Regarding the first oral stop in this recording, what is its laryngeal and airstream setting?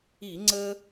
click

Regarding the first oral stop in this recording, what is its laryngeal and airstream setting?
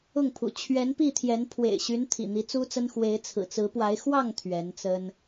aspirated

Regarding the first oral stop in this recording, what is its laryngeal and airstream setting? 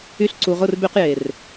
click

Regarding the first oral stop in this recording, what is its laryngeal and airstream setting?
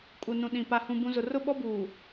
ejective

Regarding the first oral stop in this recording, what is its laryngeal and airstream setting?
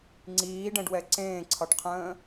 click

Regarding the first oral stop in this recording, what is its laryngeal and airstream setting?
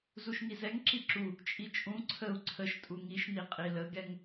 click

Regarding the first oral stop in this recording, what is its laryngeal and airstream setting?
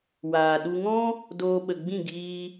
implosive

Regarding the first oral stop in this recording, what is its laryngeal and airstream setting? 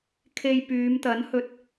aspirated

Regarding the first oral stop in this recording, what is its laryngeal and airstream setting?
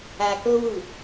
plain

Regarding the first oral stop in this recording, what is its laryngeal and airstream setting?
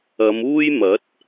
plain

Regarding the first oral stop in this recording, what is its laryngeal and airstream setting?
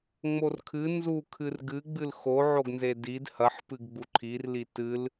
aspirated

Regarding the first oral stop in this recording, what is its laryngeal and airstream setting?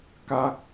plain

